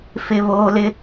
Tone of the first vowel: high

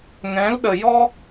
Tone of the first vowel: rising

